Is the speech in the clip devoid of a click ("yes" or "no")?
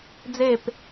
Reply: yes